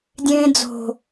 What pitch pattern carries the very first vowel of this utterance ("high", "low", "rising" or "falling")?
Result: low